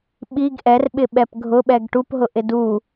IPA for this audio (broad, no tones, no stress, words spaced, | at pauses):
ɓiɡ ʔɛrɓɪɓɛp ɡʱʊɓɛɡ ʈupɦʊʔɪ du